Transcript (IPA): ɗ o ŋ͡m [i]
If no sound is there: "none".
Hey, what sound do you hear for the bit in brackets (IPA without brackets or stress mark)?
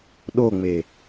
e